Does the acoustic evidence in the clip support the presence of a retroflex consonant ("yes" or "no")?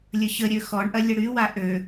yes